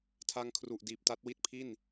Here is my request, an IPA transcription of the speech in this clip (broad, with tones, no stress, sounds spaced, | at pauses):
tʰ a˧ ŋ kʰ r u˨˩ ʔ d iː˨˩ p̚ t a˦˥ t̚ w i˥˩ t̚ pʰ i˥˩ n